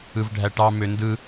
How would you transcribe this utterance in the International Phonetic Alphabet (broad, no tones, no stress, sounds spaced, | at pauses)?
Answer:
ɯ v ɖʱ æ ʈ ɑ m ø n d ɯ